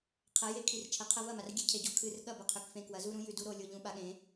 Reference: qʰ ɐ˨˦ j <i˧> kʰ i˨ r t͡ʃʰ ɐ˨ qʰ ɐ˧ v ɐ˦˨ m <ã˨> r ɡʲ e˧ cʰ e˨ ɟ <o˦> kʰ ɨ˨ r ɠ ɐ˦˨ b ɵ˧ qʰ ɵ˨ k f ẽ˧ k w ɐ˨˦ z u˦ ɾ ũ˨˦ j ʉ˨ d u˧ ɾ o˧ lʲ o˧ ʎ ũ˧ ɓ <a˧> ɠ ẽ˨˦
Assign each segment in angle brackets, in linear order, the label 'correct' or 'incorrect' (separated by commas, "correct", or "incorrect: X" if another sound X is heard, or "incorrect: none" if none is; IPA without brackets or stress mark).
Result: incorrect: e˧, incorrect: a˨, correct, correct